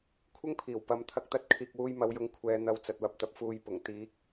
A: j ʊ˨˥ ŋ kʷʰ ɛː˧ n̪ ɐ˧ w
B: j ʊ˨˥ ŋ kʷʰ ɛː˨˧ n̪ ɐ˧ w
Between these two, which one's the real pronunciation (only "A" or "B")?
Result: B